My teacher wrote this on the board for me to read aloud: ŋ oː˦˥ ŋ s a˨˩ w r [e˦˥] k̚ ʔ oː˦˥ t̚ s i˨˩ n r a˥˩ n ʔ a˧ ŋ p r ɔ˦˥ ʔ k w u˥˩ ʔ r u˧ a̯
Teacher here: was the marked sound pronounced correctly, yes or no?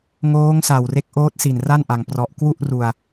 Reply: yes